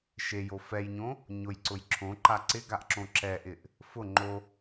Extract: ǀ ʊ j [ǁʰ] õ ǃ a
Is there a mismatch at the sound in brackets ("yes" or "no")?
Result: no